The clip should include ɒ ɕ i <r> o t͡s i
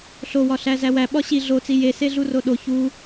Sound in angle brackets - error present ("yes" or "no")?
yes